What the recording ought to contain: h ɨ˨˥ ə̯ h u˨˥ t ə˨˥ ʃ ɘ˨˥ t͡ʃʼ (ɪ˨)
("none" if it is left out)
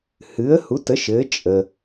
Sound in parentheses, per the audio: ə˨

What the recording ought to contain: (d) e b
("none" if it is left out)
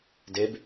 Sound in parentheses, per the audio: d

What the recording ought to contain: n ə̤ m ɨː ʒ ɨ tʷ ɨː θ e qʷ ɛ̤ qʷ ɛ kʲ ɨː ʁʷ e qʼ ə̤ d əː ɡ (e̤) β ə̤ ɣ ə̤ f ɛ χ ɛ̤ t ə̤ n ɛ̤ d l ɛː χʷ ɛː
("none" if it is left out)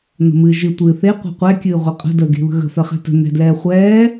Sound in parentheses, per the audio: e̤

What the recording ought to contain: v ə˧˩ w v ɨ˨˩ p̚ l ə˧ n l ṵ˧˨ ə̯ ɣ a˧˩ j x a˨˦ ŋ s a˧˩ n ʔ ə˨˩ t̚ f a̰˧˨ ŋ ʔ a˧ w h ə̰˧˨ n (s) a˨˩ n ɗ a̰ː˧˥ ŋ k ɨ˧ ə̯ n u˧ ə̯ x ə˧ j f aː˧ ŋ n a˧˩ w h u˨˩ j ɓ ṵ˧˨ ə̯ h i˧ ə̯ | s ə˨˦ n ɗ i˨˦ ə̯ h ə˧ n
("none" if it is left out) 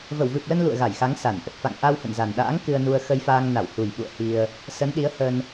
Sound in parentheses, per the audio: z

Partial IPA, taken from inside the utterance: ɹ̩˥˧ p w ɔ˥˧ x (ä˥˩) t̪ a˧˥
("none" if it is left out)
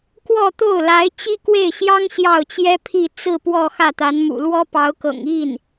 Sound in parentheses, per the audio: ä˥˩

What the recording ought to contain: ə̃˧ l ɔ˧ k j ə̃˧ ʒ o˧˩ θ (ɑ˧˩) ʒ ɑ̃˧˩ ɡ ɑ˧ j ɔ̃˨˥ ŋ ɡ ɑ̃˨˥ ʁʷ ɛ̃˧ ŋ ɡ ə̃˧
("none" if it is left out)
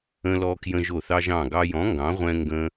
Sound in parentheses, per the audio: ɑ˧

